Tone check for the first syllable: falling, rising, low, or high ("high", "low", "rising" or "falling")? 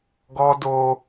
high